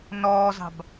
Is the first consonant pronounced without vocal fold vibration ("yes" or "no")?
no